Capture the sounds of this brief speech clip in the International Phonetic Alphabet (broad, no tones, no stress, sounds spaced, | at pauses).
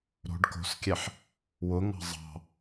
ɾ o̤ ɖ k o̤ s kʲ ɛ ħ | w ʊ ŋ ɑ̤ zˤ ɑ̤